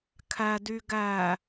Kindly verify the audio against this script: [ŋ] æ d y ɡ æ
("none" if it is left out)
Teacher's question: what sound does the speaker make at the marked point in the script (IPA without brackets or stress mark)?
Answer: kʰ